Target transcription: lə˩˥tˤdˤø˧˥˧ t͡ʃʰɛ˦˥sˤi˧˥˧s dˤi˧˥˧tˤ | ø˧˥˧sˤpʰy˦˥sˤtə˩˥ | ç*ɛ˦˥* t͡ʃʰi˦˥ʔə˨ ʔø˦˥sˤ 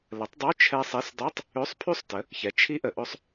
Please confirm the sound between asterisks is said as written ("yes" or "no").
no